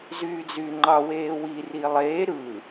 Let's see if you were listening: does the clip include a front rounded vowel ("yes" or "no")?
yes